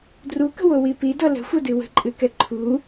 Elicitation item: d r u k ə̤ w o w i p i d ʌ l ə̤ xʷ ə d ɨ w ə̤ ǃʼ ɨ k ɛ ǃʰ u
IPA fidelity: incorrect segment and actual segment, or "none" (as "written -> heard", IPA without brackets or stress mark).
none